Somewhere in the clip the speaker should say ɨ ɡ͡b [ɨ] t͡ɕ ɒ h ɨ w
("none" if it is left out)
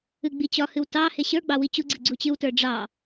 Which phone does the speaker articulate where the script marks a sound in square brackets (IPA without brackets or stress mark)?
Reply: i